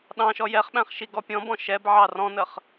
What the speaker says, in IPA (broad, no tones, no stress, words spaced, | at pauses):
ɗɑ̃ʃɔ jɛχɓæ̃χʃi ɡɔpʲɔ̃bɔ̃ ʃɛb ʕɑrɔ̃nəχ